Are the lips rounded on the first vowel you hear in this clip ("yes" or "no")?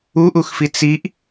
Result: yes